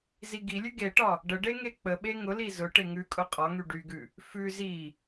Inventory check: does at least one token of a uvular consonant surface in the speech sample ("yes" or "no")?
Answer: yes